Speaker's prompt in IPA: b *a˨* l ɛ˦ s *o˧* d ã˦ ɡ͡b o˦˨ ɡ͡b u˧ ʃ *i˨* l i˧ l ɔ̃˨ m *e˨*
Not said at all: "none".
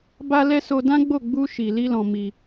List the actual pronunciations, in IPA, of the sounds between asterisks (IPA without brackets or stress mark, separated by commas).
a˦, o˧, i˨, i˨